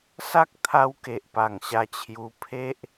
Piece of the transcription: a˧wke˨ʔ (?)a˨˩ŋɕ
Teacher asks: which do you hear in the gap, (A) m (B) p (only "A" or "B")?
B